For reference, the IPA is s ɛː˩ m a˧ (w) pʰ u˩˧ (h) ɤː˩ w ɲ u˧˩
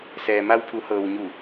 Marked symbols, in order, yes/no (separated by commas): yes, yes